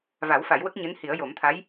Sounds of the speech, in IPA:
va˨˩˦w fa˨˩˦jwə˦˥k̚ɲɨ˧˥n hi˨˩˦ə̯jo˨˩˦mt̪ʰa˧˥j

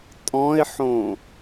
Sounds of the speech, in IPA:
tʼɔ̃ɪ̯ħõ

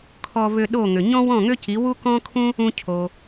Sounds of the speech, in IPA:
kʰɔ˧vʏ˧ ɗo˥˩ŋʏ˩ ɲɔ̃˥wɔ̃˥˩ŋʏ˥ci˩˥ wu˥kɔ̃˥kʰũ˥ | ũ˧cʰo˩

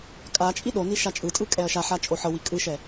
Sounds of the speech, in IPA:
kʼat͡ʃʼi ɗoni ʃat͡ʃʼɯtʼɯ kʼɛɐ̯ʃaħa t͡ʃʼoħɤwi kʼɯʃɛ

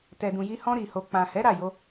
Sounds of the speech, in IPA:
tɛ˨dũ˨ji˧ hɔ̃˧ ɾi˨ho˨ k͡pã˨hɛ˨˦ ɾa˦˨jo˧

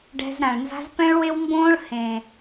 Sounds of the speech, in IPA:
ɖɛ̤˧z ɾã˨ɭnza̤˦z pɛ̃˦ɭwe˦wmbõː˦ɭ hẽ˨

